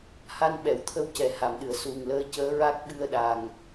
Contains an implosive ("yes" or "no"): yes